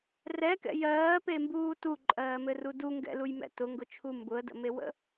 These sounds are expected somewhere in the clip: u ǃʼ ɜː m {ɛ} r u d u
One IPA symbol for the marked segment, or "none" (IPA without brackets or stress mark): ɘ